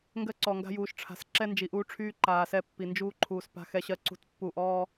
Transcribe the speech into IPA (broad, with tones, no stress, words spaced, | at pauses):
ŋɡɜ˦ǀɔ˨ŋɡa̤˦ juː˨ʃʈ͡ʂʰa̤˨s ǁɛ˦nd͡ʒi˨ʔuː˦ʈ͡ʂʰyː˦ ǃaː˨ sɛ˦pːi˨ nd͡ʒuː˦ǃʰuː˨s pa̤˦xɛ˦ɕɜ˦ ǀṳ˦t pːu˦˨ʔɔː˦